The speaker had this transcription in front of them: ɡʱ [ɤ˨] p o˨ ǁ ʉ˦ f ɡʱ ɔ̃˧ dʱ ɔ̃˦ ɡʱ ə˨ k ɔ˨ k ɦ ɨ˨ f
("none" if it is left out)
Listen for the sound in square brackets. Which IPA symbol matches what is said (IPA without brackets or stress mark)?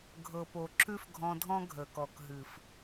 ɤ˨